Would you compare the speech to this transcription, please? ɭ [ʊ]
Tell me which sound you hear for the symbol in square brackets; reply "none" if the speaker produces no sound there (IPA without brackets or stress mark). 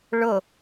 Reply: ʊ